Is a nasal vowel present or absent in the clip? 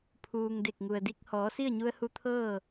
absent